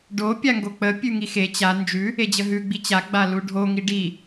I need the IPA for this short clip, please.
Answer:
ɖ o pʲ a ŋ ɡ o k͡p ə pʲ ʉ ŋ i x e t͡ɕ a n d͡ʒ ʉ | e d͡ʑ ə ɦ ʉ ɡ͡b i t͡ɕ a ɡ͡b a l u ɖʱ o ŋ i ɖ i

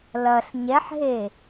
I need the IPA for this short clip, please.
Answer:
l ɐ ɬ ɲ ɛ ħ ɦ e

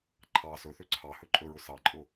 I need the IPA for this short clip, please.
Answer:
ǃʰ ɑ s ɵ θ ø ǀʰ ɑ h ɵ ǃʼ ɵ ɹ ʊ s ɑ ǃʼ ʊ

